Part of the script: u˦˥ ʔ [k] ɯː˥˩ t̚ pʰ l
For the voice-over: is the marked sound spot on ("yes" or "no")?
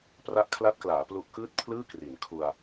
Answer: yes